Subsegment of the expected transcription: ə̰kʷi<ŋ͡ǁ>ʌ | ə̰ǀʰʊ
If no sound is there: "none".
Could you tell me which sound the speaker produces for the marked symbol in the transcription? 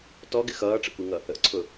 ŋ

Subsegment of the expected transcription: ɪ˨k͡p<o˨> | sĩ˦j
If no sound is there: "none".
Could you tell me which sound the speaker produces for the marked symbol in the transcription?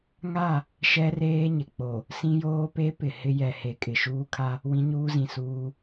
o˨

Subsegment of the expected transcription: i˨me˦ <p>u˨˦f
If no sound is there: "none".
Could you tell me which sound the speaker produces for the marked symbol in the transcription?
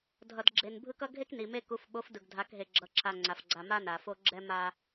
k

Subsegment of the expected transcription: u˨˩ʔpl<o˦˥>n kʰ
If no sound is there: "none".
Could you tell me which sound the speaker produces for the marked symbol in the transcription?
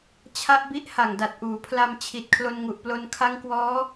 o˧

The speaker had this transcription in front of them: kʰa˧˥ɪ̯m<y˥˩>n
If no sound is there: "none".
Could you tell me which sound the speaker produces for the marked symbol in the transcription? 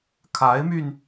y˧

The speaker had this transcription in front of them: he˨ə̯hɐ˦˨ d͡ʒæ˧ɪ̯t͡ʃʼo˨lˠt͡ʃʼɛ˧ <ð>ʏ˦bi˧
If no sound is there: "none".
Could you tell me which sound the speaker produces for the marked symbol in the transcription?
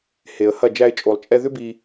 ð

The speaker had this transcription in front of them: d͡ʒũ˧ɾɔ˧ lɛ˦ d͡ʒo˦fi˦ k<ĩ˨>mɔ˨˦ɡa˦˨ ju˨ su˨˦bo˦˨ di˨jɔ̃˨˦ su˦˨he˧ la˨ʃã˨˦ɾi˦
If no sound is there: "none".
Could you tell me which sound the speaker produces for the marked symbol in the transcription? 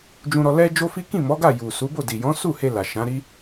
ĩ˦˨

